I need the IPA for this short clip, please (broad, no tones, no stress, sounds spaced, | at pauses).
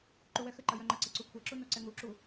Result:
ǃ u w ɛ x ɘ ǃ ɐ j œ ŋ͡ǃ ɐ ǀ ɘ ǀ u kʷʰ ɛ ǁ u n o ǀ ɛ ŋ u ǁ u